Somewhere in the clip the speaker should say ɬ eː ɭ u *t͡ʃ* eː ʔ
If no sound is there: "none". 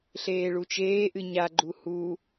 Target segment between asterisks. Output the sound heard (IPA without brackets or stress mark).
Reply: t͡ʃ